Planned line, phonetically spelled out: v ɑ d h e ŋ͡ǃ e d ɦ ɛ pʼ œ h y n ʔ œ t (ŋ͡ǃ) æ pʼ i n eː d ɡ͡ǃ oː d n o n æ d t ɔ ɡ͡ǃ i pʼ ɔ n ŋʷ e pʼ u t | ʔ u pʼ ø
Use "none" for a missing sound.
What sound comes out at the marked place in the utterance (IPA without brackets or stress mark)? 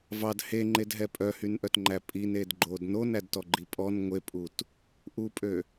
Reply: ŋ͡ǃ